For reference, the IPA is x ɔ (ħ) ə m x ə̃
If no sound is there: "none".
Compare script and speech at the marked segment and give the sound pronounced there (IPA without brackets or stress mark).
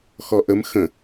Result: ʔ